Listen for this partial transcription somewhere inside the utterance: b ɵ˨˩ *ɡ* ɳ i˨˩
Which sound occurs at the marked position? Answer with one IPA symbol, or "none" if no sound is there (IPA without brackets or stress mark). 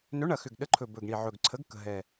ɡ